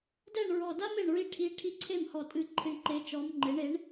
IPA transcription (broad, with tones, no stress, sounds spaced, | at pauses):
d ɛ˥˩ ɳ ɹ ɔ˧˩ d a˥ m e˥˩ ɳ ɹ i˥˩ ʈʰ i˧˥ ʈʰ i˧˥ ǀʰ e˥˩ m h ɔ˧˩ tʼ ɨ˥˩ ǃʰ i˧˥ ɳ ǃ e˧˥ t͡ʃ ɔ˧˥ m ŋ͡ǃ e˩˥ ɳ e˩˥ ɳ